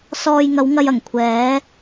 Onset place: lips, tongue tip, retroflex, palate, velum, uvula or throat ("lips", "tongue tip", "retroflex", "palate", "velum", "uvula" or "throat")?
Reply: tongue tip